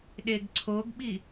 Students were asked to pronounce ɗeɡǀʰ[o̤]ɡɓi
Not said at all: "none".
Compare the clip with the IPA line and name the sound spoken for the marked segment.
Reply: o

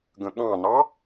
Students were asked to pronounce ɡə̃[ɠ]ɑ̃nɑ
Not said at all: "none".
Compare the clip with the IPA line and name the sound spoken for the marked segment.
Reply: ɠ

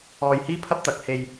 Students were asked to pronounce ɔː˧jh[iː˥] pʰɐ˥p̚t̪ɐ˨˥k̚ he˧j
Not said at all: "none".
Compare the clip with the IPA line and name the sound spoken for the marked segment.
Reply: iː˥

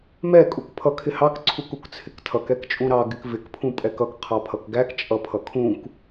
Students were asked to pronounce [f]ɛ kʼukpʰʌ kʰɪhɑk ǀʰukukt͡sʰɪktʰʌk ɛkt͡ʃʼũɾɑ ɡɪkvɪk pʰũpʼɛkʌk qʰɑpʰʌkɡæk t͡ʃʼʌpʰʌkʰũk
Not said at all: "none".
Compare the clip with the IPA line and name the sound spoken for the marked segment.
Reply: m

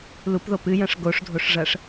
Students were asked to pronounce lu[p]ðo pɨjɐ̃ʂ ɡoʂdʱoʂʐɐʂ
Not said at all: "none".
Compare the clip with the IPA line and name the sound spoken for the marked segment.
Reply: p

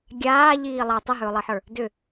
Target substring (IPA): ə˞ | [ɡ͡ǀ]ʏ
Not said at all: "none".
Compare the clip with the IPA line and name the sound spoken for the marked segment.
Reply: d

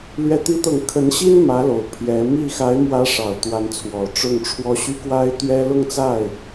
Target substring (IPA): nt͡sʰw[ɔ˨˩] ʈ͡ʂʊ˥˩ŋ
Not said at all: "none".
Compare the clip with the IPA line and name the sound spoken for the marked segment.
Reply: ɔ˨˩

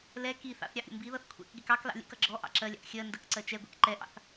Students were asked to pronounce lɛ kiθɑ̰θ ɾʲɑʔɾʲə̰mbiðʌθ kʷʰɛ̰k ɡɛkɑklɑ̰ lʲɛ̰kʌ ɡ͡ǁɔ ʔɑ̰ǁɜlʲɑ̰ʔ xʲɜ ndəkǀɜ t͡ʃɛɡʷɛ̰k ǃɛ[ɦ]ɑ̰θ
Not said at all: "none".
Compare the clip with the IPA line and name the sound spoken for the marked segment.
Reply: ʔ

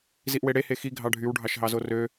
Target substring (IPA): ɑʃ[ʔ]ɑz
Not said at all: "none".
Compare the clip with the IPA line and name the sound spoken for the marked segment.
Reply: ɦ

